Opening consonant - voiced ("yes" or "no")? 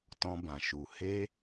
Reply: no